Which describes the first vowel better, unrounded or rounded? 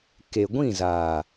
unrounded